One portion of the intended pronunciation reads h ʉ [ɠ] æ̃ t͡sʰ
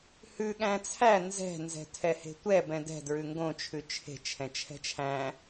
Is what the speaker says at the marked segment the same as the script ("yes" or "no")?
yes